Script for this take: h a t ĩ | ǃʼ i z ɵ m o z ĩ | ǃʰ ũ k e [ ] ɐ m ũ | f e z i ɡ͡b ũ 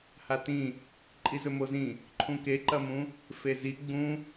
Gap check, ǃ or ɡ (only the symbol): ǃ